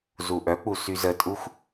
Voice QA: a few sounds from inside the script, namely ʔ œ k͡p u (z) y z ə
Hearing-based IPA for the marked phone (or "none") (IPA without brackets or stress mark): s